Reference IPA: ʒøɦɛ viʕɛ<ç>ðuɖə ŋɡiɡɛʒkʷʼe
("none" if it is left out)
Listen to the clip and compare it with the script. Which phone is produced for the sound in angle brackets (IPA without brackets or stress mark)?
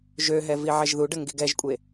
ʒ